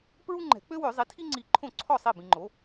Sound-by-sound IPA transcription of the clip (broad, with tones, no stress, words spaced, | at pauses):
pɹu˥ŋ͡ǃɛ̤˨˩˦ k͡pø˥wø˨˩˦zˤi˩˥ tʰi˥ŋ͡ǀi˧˩ ǃʰõ˥˩ǀʰɔ˥˩sˤi˥˩ bĩ˧ŋ͡ǃo˩˥